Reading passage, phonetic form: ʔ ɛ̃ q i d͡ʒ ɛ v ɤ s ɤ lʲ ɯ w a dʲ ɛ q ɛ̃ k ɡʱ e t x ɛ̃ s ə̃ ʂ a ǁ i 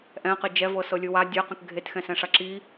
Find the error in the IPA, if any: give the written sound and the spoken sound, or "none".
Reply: ə̃ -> ɛ̃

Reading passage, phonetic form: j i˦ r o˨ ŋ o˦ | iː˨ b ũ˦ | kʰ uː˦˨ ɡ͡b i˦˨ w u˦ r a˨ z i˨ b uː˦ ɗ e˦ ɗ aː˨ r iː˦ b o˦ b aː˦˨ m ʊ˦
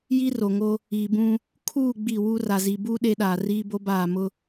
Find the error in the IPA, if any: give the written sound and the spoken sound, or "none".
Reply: none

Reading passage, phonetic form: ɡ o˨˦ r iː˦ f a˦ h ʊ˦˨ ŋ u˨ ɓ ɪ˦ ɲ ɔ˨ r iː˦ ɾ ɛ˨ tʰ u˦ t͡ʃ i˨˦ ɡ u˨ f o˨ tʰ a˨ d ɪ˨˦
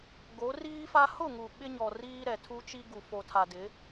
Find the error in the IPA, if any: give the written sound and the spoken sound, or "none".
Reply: i˨˦ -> i˦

